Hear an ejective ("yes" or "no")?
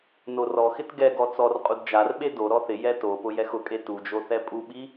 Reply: yes